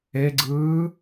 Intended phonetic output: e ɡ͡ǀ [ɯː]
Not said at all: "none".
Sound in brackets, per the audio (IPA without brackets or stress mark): ɯː